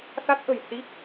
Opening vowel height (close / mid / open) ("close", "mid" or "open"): open